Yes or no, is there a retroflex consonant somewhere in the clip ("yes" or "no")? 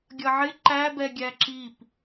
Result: no